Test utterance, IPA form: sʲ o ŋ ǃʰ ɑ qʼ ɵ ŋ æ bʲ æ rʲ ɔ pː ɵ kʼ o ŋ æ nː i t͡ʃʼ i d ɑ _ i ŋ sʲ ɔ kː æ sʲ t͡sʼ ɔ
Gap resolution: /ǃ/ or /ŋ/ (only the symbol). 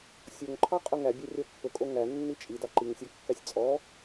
ǃ